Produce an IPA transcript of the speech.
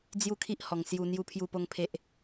d͡zju˥˧kʰi˦ʔhɔ˨˩ŋsju˧ n̪ju˦pʰju˥˧ po˥˧ŋpʰe˦ʔ

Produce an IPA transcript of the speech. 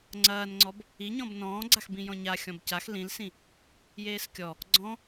ŋ͡ǀɐːnŋ͡ǀɔb | iɲɔ̃b nɔ̃ːɡ͡ǀaxbĩ jɔ̃ɲa xʲɔ̃bcax lĩlsĩ | jeːskʲɔ | ɡ͡ǀɔ̃

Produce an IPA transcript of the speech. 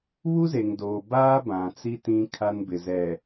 βu˦ze˨ŋdoː˨baː˦ bã˨t͡si˦ tĩ˦ kʰa˦nbɪ˨ zɛ˨

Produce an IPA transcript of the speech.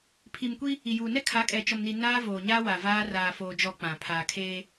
pʰi˨mkʷi˦ | i˨juː˨nɛ˦ kʰa˨˦kʼɛ˨t͡ʃɔ˨mni˨ naː˦voː˨ɲaː˦wa˨ vaː˦ raː˨foː˨d͡ʒɔ˨ k͡pã˨pʰaː˨kʰeː˦

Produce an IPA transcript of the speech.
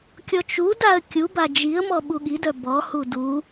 kʲɔt͡ʃudaə̯ kʲuba d͡ʒiə̯mɔ ɓuɠidœ bɔhu du

